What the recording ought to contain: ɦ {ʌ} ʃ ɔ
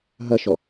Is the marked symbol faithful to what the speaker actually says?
yes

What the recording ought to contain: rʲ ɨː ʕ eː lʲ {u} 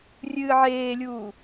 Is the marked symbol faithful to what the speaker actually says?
no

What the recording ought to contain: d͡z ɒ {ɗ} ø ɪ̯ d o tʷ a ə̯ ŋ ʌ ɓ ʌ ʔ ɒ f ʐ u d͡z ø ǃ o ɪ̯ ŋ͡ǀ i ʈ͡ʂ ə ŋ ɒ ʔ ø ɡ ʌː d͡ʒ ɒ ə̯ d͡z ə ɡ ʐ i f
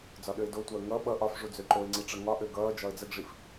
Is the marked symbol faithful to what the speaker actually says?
yes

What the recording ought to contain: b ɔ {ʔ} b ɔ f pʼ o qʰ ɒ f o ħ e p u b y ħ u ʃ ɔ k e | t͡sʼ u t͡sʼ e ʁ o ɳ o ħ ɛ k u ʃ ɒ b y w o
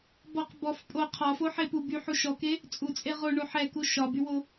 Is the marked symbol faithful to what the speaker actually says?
no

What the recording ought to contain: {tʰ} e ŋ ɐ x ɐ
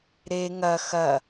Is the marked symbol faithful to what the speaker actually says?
no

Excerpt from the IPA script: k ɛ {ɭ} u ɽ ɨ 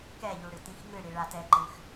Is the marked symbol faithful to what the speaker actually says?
no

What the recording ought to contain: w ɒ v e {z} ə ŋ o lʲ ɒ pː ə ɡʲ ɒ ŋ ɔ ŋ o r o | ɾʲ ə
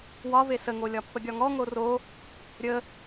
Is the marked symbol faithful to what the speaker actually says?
no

